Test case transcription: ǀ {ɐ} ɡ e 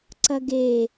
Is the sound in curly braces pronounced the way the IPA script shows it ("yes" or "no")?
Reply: yes